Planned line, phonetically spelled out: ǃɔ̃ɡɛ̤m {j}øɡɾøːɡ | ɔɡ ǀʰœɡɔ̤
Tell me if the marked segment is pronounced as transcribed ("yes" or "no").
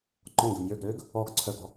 yes